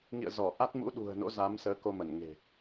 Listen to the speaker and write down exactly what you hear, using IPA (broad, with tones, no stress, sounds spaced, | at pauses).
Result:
ŋ ḭ˧˨ ə̯ z ɔ˧˩ ʔ a˦˥ t̚ m ṵ˧˥ ɗ ṳ˨˩ ə̯ n o̰˧˥ z a˨˦ m s əː˨˦ k o˧ m ə˧˩ n ŋ e̤˨˩